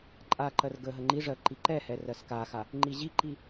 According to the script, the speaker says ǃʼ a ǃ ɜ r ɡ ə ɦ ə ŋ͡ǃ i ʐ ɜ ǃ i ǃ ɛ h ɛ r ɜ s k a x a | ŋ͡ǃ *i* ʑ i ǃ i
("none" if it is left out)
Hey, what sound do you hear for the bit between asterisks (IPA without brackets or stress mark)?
i